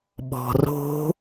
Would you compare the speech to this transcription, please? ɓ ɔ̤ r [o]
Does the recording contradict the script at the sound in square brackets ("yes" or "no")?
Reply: yes